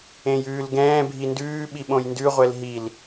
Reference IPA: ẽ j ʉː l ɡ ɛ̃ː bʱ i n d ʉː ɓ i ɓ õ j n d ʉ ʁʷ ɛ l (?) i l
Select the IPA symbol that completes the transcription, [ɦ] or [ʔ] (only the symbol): ɦ